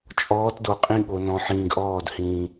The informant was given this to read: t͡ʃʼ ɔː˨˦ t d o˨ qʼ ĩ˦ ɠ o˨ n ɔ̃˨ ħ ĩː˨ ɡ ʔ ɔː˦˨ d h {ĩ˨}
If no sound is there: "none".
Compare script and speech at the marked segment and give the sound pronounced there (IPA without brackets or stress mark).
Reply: ĩː˨